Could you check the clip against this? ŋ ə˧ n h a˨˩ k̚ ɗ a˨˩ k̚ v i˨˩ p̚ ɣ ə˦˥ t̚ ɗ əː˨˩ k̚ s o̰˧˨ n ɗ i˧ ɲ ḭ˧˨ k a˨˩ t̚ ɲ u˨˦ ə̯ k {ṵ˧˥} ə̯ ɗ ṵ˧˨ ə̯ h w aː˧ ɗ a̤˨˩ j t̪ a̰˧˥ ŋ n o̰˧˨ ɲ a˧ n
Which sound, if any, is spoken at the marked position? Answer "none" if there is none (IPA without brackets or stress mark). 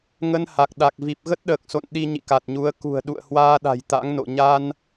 ṳ˨˩